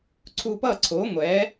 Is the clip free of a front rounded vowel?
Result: yes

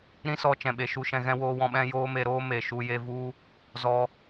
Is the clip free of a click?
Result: yes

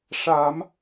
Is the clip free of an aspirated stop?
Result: yes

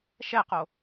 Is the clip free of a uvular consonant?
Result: no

